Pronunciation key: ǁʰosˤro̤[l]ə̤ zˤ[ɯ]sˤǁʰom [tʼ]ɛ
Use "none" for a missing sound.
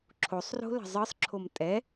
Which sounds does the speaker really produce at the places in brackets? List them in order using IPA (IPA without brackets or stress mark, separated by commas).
l, ɯ, tʼ